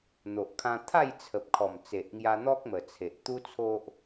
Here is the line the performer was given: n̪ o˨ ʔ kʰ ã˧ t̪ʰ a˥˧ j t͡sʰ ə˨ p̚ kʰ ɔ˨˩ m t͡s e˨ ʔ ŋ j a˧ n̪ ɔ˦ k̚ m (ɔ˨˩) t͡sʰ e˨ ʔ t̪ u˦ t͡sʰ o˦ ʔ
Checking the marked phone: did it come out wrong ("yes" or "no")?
yes